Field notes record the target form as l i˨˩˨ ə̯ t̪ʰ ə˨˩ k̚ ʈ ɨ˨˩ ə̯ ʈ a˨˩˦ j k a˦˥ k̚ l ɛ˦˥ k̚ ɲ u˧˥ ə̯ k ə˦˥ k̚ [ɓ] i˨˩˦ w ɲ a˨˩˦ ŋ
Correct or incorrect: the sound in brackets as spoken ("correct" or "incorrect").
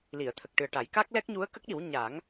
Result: incorrect